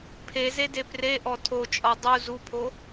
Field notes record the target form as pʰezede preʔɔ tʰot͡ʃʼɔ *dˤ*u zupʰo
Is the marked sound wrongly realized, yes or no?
no